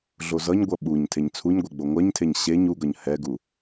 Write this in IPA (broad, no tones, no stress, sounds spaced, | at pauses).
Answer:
ɮ o z ʌ ɲ ɡʷ ʌ ɓ u ɲ tʰ e ɲ t͡sʰ u ɲ ɡʷ ɛ ɡ͡b o ŋʷ ɜ ɲ tʰ e ɲ ɕ e ɲ u ɡ ʌ ɲ h ɛ ɡ u